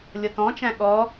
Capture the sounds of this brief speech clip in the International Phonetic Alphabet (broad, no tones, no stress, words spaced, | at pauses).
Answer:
lʲʌtɔ̃t͡ʃæ̃ ɠɔ